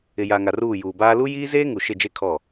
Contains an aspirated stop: yes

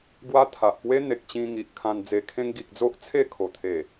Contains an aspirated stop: yes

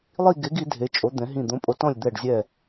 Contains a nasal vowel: yes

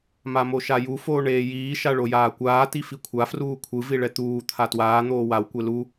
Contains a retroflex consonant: yes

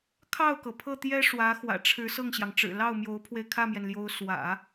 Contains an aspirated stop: yes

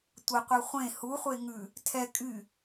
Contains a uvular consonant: yes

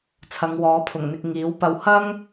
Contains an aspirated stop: yes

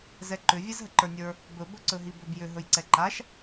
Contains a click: yes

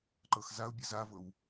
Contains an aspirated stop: no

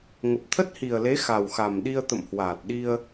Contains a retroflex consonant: no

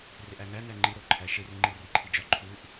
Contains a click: yes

